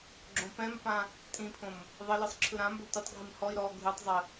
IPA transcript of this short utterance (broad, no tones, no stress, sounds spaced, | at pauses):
ɡ͡ǁ õ p ɛ̃ m p ã | tʼ ĩ pʰ õ m | ðˤ ɘ l ɯ sˤ ǁʰ ɯ ɾ ã m b ɵ tʷ ə tˤ ɡʱ i m h ɔ i̯ ɾ ɔ ɡʱ ɯ tˤ zˤ ə